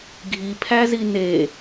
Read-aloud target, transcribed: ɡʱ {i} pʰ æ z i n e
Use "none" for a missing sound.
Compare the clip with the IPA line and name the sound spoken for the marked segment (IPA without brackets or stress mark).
i